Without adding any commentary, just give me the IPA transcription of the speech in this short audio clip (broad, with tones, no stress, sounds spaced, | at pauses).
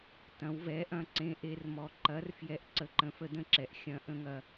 t ɐ̃˩˧ w v ɛ˩˧ ʔ ɐ̃˩˥ ǀ ẽ˩˥ ʔ e˩˧ r m ɔ˩˧ ǃ ɐ˩˥ r f j ɛ˩˥ ʔ ǀ ə˩˥ ǃ ə̃˩˧ f ə˩˥ d ə̃˩˥ ǁ ɛ˩˧ ʔ xʲ ɐ̃˩˥ ʔ ə̃˩˥ ŋ ɐ˩˧